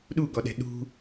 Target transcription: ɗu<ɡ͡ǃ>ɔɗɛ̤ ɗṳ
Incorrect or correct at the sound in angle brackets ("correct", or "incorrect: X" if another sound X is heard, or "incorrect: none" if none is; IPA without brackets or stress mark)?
incorrect: ɡ